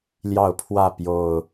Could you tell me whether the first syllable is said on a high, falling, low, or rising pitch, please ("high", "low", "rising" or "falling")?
falling